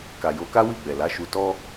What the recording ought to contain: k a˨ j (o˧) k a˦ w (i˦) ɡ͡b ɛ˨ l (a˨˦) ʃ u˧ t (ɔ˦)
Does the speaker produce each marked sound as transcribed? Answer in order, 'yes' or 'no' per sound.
yes, no, yes, yes

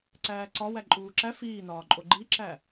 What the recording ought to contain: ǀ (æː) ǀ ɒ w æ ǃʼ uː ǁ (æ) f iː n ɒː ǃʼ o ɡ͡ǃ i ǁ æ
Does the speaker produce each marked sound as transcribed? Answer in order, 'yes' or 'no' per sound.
yes, yes

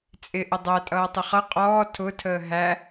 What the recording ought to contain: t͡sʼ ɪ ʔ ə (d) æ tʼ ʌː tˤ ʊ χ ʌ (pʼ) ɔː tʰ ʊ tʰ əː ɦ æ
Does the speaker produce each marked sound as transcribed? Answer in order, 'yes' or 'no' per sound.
no, no

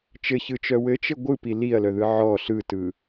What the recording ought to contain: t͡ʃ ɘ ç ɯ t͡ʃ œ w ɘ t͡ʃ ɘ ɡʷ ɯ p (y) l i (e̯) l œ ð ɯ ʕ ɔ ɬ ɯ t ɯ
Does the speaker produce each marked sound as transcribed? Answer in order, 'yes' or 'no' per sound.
no, no

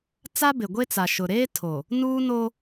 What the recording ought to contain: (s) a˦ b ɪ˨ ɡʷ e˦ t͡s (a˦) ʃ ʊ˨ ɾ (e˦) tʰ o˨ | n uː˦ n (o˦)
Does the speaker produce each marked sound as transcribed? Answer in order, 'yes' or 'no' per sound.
no, no, no, yes

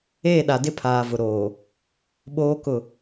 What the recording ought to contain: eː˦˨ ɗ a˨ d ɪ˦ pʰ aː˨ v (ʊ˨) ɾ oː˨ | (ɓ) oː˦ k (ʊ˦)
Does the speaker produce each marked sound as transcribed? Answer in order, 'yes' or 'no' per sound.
yes, yes, no

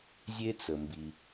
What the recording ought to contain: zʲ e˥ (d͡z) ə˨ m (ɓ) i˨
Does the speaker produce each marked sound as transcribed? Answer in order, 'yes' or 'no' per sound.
no, no

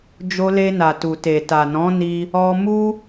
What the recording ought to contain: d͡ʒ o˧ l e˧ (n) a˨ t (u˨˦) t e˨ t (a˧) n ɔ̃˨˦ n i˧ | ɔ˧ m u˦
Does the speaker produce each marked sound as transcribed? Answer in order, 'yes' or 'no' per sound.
yes, no, no

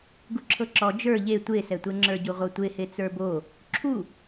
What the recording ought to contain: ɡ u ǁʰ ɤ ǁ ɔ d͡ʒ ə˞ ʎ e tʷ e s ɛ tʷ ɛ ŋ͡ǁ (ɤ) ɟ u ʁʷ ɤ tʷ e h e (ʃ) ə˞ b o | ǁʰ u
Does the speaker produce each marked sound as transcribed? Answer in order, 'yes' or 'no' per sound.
no, no

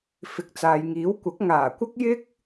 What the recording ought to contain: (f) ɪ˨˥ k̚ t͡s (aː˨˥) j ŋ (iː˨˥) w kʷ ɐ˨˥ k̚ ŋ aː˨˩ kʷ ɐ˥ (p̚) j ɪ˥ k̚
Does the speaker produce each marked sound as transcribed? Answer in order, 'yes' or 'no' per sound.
yes, no, yes, no

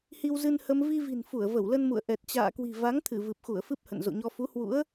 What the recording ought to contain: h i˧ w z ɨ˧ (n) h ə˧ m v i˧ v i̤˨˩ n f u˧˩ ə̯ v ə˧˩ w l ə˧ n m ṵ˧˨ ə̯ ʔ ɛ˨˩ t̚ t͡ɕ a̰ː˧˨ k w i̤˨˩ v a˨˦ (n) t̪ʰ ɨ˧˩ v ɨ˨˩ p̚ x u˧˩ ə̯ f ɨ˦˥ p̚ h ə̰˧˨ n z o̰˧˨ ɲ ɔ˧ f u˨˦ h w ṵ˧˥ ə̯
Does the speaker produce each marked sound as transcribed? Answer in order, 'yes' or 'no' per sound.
yes, no

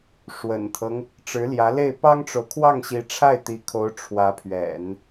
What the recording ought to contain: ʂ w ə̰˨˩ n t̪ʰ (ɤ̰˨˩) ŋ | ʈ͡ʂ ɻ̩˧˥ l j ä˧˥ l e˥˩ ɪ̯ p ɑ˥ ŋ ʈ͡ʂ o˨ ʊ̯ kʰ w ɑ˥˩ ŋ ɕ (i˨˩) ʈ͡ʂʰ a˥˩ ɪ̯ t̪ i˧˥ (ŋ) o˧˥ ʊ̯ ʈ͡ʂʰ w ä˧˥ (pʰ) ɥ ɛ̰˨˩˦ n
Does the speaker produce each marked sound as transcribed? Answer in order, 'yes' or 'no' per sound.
no, no, no, yes

